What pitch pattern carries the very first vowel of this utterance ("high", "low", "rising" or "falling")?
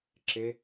high